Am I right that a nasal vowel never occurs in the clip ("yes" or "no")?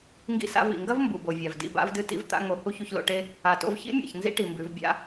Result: yes